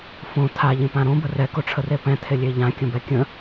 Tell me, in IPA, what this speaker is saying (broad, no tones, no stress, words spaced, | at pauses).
fõ tʰaʎẽpã ɾõbə rɛkoʈ͡ʂʰəre pɛ̃tʰelʲe ʎãkʲə̃bɛ kʲə̃